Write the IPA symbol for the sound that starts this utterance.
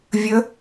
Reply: vʲ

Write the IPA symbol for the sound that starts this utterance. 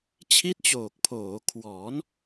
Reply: t͡ɕʰ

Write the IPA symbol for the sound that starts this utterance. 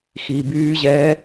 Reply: x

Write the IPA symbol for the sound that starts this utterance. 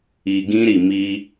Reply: i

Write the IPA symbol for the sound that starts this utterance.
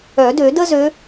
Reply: œ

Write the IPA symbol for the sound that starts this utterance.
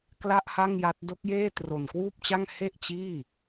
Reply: k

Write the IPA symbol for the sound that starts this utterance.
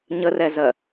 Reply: ɲ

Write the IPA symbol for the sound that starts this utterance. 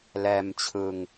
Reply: l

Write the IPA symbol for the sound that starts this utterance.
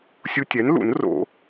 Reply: sʲ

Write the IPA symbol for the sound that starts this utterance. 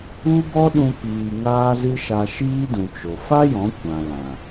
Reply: u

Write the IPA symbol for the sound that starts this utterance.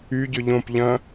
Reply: y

